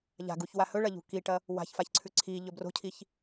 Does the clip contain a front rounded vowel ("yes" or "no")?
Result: no